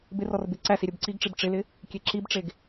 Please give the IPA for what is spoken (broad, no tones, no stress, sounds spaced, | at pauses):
b ɪ r ɔ r b ɪ ǀ æ s i ɾʲ ɘ b ǀ i ɡ ʈ͡ʂ i b ʈ͡ʂ ɪ l ɪ | kʲ e ǁ i b ʈ͡ʂ e ɡ